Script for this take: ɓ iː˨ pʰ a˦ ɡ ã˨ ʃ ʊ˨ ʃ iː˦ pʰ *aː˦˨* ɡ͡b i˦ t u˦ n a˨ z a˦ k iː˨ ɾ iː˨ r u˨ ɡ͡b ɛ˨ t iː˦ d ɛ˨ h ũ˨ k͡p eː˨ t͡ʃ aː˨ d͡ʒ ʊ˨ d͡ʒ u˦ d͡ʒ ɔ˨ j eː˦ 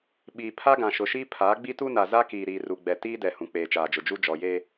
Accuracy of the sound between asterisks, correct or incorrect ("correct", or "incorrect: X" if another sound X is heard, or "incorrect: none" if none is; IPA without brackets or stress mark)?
incorrect: aː˨˦